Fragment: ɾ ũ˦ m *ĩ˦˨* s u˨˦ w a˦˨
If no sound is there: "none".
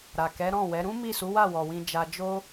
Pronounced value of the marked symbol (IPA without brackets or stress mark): i˦˨